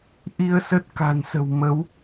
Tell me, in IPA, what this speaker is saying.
ʔ i˧ ə̯ s ə˦˥ t̚ k a̤˨˩ n s ə̤˨˩ w m ə˨˦ w

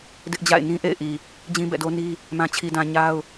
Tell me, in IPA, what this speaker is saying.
d ɪ˦ ʔ d͡ʑ a̰˦˨ ɪ̯ n ĩ˦ ʔ ḛ˦˨ ɪ̯ ʔ i˨ | d͡ʑ ĩ˦ b ɛ̰˦˨ d o˦ n i˦ | m ã˦ t͡ɕʰ i˦ d ã˦ ɲ a˦ ʊ̯

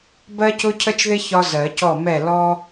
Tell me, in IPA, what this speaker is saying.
b ɜ˥ c ʊ˥ cʰ ə˥ t͡ʃ ð ɪ˥ ç ɒ˥ z ɜ˨˩˦ c ɔ˥˩ m ɛ˥˩ l ɔ˥

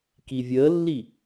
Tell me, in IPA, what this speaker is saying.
k i vʲ əː lː i

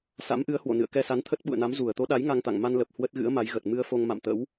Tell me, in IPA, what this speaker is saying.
s a̰˧˥ m ʔ ɨ˨˦ ə̯ h w o̰˧˨ n ɨ̰˧˨ ə̯ k ɛ˧ s a˨˦ n t̪ʰ ə˦˥ t̚ ɓ ṵ˧˨ ə̯ n a˨˦ m z u˧˩ ə̯ t̪ o˨˦ ɗ a˨˦ j ŋ a˧ ŋ t̪ a̰˧˨ ŋ m a˧ n l ə˨˩ p̚ h w ə˦˥ t̚ ɣ ɨ̰˧˥ ə̯ m a˨˦ j ɣ ə˨˩ t̚ m ɨ˧ ə̯ f o˧ ŋ m a̰˧˨ m t̪ ə̰˧˥ w

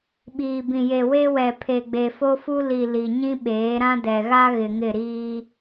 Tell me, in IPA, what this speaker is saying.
ɓ iː˨ b ĩ˨ j e˨ w e˦ w ɛ˨ pʰ e˨ ɡ͡b e˨ f o˦ f u˦ l i˨ l i˨ ɲ ĩ˦ ɓ eː˨˦ ɾ ã˦ d ɛ˨ ɣ a˦ ɣ ɪ˨ ŋ ɪ˦˨ ɾ iː˦

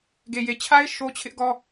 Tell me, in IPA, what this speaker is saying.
ɡ e˨ j e˨ t͡ɕʰ a˦ ɪ̯ ʃ o˦ t͡ɕʰ ɪ˦ ʔ ɡ ɔ˦

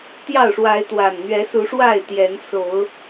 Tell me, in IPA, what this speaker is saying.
t̪ j ɑ˥˨ ʊ̯ ʂ w a˨˦ ɪ̯ t̪ w a˨˩ n n̪ ɥ ɛ˨˦ s u˨˦ ʂ w a˥˨ ɪ̯ t̪ j ɛ˨˦ n s o˨˦ ʊ̯

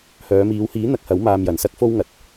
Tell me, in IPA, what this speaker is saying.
h œː˨˧ m iː˨˧ w h iː˨˥ n̪ ɐ˧ k̚ h ɐ˨˥ w m aː˧ m j ɐ˨ n s ɐ˥ k̚ f o˥ w ŋ ɐ˨˥ t̚

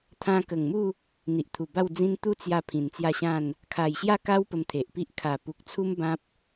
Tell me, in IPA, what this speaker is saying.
t̪ʰ ã˧ k ə˨˩ ŋ m u˥˧ | n̪ i˨ ʔ t̪ʰ u˨˩ b a˥˧ w d͡z ĩ˦ n t̪ u˦ t͡s j a˧ pʰ ĩ˨˩ n t͡s j a˥˧ ɕ ã˥˧ n | kʰ a˨˩ j ɕ j a˥˧ k a˦ w p ə˧ m t̪ʰ e˨ ʔ p i˦ ʔ kʰ a˨˩ p u˨ k̚ t͡sʰ u˦ m b ã˦ p̚

